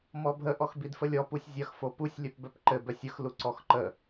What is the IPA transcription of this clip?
m ɔ bʱ ə ʔ ɔ x b i d f ə lʲ ɔ p u sʲ zʲ ɐ x f o p u sʲ lʲ œ p b œ p ǃ ɘ b œ sʲ ə x l u ǀ ɔ x ǃ ə

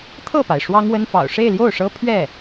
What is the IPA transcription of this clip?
t̪ʰ ɤ˥˩ p a˩ ɪ̯ ʂ w ɑ˥ ŋ w ə˥ n f ɑ̰˨˩ ʊ̯ ʂ e˥˧ ɪ̯ l j o˥˩ ʊ̯ ʂ ɤ˥ pʰ ɥ ɛ˥˩

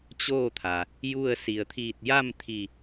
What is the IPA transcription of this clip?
t͡ɕ oː˥˨ t̪ʰ a˩ | j u˥˨ ə̯ s i˩ ə̯ t̪ʰ iː˧˩ t̚ j a˥˨ m t̪ʰ i˧˩

